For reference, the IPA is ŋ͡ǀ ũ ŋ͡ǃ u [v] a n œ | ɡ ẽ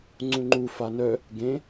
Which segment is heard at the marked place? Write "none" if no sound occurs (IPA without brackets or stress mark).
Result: f